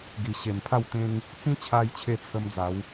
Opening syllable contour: low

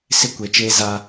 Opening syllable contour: high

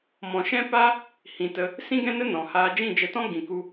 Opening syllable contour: low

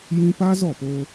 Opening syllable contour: high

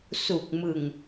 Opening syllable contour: low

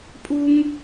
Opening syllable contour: high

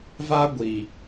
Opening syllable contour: high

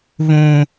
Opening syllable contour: high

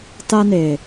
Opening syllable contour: high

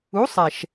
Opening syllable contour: rising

